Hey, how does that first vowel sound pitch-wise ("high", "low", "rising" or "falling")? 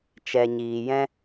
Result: low